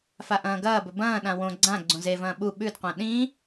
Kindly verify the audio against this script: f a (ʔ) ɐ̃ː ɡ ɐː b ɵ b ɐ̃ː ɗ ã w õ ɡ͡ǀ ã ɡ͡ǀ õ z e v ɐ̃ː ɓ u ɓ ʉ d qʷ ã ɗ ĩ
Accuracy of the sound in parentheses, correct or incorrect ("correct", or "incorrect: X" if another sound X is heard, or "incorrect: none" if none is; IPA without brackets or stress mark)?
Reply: correct